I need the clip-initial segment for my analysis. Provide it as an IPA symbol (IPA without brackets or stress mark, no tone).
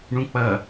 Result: ɳ